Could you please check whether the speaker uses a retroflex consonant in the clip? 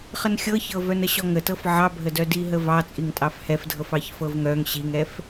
no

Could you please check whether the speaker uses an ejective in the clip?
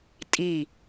yes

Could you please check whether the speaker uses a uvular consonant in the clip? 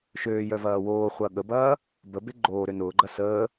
yes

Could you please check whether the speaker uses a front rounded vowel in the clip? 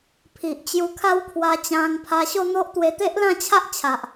no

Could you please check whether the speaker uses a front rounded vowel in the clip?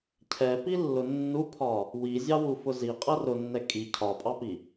no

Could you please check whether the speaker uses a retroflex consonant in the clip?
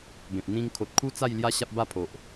no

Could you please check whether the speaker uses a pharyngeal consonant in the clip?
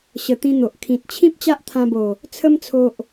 no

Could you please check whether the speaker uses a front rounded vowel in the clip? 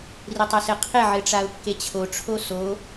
no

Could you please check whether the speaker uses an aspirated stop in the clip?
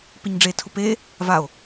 yes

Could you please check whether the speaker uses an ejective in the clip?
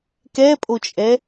yes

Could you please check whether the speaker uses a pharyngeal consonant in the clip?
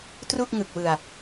no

